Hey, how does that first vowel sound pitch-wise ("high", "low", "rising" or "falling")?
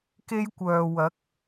high